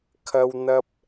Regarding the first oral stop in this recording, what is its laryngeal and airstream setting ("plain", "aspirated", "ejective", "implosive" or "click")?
aspirated